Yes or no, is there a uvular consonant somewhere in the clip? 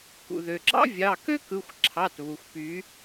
no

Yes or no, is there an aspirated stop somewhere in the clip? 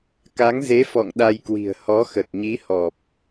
no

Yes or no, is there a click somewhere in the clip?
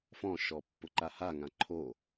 yes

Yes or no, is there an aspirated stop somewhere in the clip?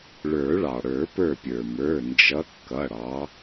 no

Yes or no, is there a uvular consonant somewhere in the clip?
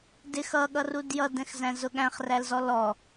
yes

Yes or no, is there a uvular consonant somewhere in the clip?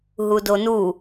no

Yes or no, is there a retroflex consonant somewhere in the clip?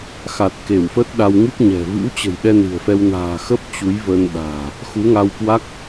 no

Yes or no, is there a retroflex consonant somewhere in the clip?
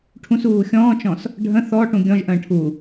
yes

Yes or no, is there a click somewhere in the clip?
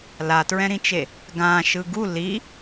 no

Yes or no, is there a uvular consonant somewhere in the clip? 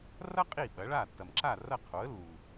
yes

